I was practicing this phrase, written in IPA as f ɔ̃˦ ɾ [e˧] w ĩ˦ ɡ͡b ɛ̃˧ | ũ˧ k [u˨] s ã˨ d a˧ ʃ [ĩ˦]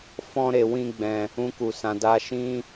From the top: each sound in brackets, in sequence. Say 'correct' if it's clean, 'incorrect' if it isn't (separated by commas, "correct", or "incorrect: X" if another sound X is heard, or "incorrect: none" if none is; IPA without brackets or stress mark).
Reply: correct, correct, correct